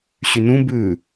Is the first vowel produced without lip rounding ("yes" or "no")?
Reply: no